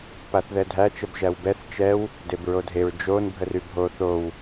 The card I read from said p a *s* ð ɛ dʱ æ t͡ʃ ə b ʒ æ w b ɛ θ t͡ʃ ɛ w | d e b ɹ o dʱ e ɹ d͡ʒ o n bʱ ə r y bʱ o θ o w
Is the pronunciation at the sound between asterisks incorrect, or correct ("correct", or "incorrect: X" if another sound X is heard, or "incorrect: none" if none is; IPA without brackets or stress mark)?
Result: incorrect: θ